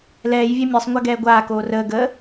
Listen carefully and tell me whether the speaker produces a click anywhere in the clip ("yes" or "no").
no